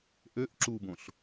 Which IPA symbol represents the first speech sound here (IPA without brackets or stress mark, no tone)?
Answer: ʔ